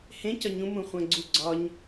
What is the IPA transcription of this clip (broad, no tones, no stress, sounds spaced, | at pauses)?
h ẽ c ɒ ɲ ũ m ũ χʷ æ̃ ɡ͡ǀ u ɡ͡ǀ ɒ ɲ